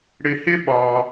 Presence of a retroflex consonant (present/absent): present